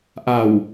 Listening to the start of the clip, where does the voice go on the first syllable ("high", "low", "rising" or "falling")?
low